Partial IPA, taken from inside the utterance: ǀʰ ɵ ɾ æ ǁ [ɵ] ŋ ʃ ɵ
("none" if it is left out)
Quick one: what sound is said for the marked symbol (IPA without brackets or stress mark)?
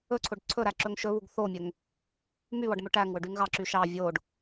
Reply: ɵ